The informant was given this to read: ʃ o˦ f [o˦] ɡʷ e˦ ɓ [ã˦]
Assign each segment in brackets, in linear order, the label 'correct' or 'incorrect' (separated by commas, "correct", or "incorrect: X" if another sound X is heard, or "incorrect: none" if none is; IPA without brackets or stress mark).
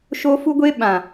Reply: incorrect: u˦, incorrect: ã˨